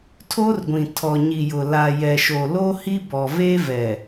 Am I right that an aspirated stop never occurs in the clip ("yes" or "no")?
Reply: no